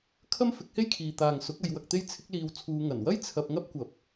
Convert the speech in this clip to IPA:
kʰ ɐ˥ m f ɪ˨˥ k̚ h e˥ j kʰ iː˨ t̪ aː˨ ŋ s ʊ˨˥ k̚ ɐ˨˧ j w ɐ˧ k̚ t̪ e˥ j t͡sʰ ɪ˥ k̚ l iː˧ w t͡sʰ uː˧ ŋ ɐ˨˩ n w ɐ˥ j t͡sʰ ɐ˧ p̚ ŋ ɐ˥ p̚ kʷ ɐ˨˥ p̚

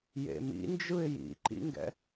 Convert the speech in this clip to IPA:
j ḛ m ḭ n d͡ʒ ɯ ɪ̯ j ḭ ǃ ḭ ŋ ɡ ɛ̰

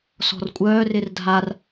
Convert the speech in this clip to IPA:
s ɔ̤ r kʷʼ œː r ɪ r dʱ a r

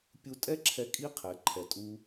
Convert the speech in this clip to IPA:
pʲ u˧ tʼ ɛ˦ ǁʰ ɛ˧ kʼ i˦ qʰ ɛ˨˦ ǃʰ ɛ˨ tʼ u˧

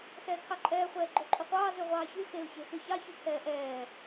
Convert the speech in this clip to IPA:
s ɛː kʰ ɑ ǃʼ ɛː χʷ ɛː ɡ͡ǃ o ǃʼ u qʷ ɑː z ʉ ʁʷ ɑː ç y x e ʊ̯ ç e x ʉ ç ɑ ç y kʰ ɛː ʔ ɛː

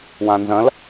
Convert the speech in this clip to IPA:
w ã n z ɐ̃ l

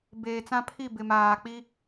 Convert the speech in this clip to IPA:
b eː˨ t͡s ã˦ pʰ i˦˨ b ɪ˨ m aː˨ k͡p i˦

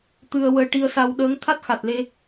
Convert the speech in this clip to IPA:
t̪ ɨ˧ ə̯ w əː˧ ʈ i˧ ə̯ s a˧ w ɗ əː˧˥ ŋ t̪ʰ a˦˥ t̚ x a˨˩ t̚ l e˧

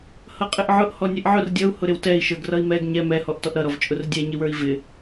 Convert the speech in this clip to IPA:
h ʌ qʼ ɪ ʔ ʕ ʊ ʔ h ɔ nʲ ɛ ʔ ʕ ʊ r dʲ ʌ u̯ h ʊ ɾ ɪ w t ɛ i̯ ʃ ə˞ ɡ r ʌ i̯ m ɛ ɡ ɲ ɛ m ɛ h ɔ ʔ t ɔ ʔ ɾ ʌ ɾ ɔ v t͡ʃʼ ʊ r dʲ ɛ ɲ ɪ w ə˞ i̯ v ɪ

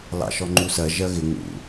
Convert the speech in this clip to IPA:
l ɑ̰ ʃ ɔ ŋ͡ǃ u s ɜ ʒ ɜ ɣ ɪ ŋ ṵ

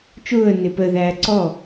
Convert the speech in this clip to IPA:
t͡ʃ ʊː ə̯ n ɪ p ə ð æː ǀ ɔ

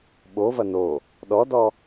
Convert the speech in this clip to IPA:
ɓ o v ɐ n o | ɗ ɔ d ɔ

